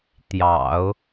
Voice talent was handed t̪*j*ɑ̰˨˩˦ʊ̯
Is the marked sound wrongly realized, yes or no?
no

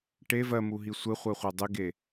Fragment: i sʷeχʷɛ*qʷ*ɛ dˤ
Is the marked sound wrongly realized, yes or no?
yes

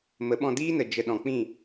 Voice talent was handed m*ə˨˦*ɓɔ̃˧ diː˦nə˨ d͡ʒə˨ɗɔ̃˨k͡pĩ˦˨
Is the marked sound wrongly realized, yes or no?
no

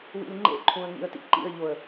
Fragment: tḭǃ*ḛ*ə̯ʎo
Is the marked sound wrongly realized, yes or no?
yes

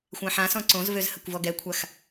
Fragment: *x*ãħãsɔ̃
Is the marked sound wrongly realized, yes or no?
yes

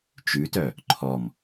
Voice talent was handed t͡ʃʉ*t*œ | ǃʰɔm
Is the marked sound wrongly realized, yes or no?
no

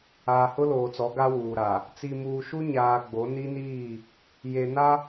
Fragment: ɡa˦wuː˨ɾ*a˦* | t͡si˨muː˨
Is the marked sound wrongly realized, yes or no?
yes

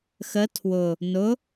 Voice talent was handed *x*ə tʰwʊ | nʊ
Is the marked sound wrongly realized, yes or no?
no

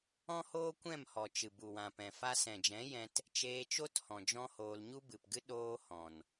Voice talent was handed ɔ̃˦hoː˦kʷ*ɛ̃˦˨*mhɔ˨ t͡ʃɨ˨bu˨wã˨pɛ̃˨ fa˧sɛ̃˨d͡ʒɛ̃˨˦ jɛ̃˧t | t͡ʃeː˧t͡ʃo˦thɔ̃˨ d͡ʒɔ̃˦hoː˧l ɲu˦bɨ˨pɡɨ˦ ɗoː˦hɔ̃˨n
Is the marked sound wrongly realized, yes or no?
no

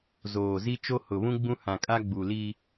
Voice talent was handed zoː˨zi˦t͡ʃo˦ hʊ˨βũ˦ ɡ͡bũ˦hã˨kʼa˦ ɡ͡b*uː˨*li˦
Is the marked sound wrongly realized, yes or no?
yes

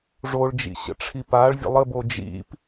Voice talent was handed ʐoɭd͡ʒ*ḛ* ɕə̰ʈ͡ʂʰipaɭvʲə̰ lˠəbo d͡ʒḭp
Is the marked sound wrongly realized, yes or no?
yes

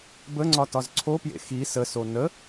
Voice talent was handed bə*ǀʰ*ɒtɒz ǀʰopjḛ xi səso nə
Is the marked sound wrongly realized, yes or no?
yes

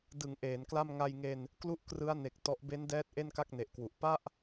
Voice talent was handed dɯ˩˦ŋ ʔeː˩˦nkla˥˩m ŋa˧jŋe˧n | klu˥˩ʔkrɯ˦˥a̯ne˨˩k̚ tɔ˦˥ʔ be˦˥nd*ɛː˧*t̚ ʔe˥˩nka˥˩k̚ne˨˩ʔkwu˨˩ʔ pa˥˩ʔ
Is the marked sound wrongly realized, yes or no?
yes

